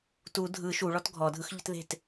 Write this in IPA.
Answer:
t u dʱ ɯ ʃ u ɭ ɔ t ɡʱ ɔ dʱ ɯ x ʎ ə̤ t ð e̤ t

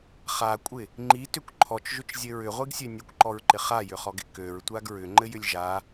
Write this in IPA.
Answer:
χ a kʷʼ ɪ | ŋ͡ǃ i t ʏ kʷ ǃʰ ɔ t͡ʃ ʒ ʏ t͡ʃ zʲ ɘ ɹ ʏ ʁʷ i ɡ sʲ ø nʲ ɘ kʷ ǃ ɔ ɹ ǃ ɪ χ a j ʏ χ ɔ ɡ ɪ k ø ɹ tʷ a ɡ ɹ ʏ ŋ͡ǃ ɘ j ʏ lʲ ʒ a

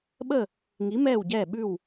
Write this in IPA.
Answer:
ɓ ə˦˨ | ŋ i˨˦ m ɛː˦˨ w ɟ ɛː˦˨ ɓ ʉ˦˨ w

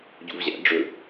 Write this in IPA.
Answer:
ɟ ṵ v ʑ æ̰ ɖ͡ʐ ɵ

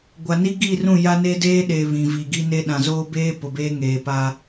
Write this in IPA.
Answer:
ɡʷ a˨ n i˦ ɡ i˦˨ r ũ˦˨ j a˦ n e˦ d eː˦ ɗ e˨ β ĩ˨ v i˨ ɡ i˦ n e˦ ɗ ã˨ z oː˦ b eː˦ p ʊ˨ b eː˦ ŋ eː˨ p a˦

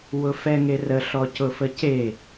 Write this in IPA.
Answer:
w ʊ f ɛ ŋ e r ə ɬ ɔ c ʊ f ə c e

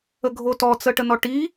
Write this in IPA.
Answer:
ə ɡʱ o t ɔ t͡s ə ʈ ə n ɔ ʈ i

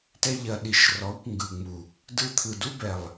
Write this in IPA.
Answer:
t ɛ˦ ʎ ɐ˧ ɗ i˧ ʃ r ɔ˨˦ kʷ ŋ ɡ ɯ˨ ŋ͡m u˨ | d ɯ˧ t̪ʰ ɯ˨ d u˦ b ɛ˨ lˠ

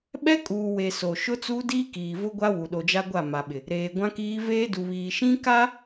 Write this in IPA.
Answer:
ɓ ɛ˦ kʼ uː˨ w e˨ s o˨ ʃ ʊ˦ t͡s uː˦ d iː˦ k iː˨ v ʊ˦ ɡʷ a˦ w u˨ ɗ o˨ d͡ʒ a˦ ɡʷ a˦˨ m a˨ ɓ ɪ˨ | ɾ eː˨ ɡʷ ã˦ k iː˦ v eː˦ d u˨ β iː˨ ʃ ĩ˦ k a˦

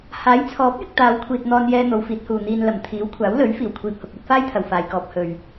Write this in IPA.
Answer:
h aː˨˥ j t͡sʰ ɔː˨˥ p̚ j ɪ˧ k̚ t̪ aː˨˧ w kʷʰ iː˨ t̚ n̪ ɔː˧ n j ɛː˥ n̪ o˨˧ w f iː˨˥ t̚ h uː˨ n̪ iː˧ n l ɐ˨˩ m t̪ʰ iː˨˥ w kʷʰ aː˨˥ w l ɵ˨˥ ɥ f iː˨˩ w kʷʰ iː˨ p̚ h ʊ˨ k̚ uː˧ t̚ f aː˥ j t̪ʰ ɐ˨˩ w f aː˨ j k ɔː˧ p̚ h ɵ˨ ɥ

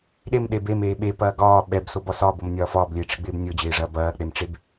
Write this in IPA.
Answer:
ɗ e m ɗ e b e m eː ɓ e p ɐː ɡ ɒː ɓ ɛ b s o b ɒ s ɒː b o m nʲ ɒː f ɒː b lʲ eː ʈ͡ʂ ɪ ɡ͡b ɪː b nʲ o d͡ʑ ɪː ʐ ɐː b ɐː k͡p e m ʈ͡ʂ e b

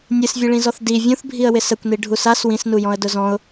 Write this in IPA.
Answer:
nʲ ɨ s vʲ ɨ ɭ ĩ z ɔ θ d i vʲ ũ θ bʱ i ə̯ w ɪ s ə kʷ n i ɖʱ u s a s w ĩ s n u j ɔ̃ ə̯ d ʊ z ɔ̃ ʊ̯

